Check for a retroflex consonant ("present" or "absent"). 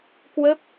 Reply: absent